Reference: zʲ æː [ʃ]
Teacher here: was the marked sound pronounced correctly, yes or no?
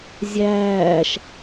yes